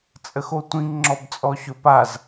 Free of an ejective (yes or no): no